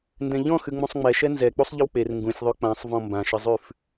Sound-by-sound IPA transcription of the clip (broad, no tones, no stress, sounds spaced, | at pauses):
n d ɛ̃ ʎ ɔ̃ x ʉ ŋ͡m ũ sˤ ŋ͡m ɛ ʃ ɛ n z ɛ k͡p u sˤ ʎ ɪ w k͡p e r ŋ ɡ ũ sʲ ðˤ ʉ k͡p ã sˤ v ɔ̃ m b ã ʃ ɪ zˤ ʉ f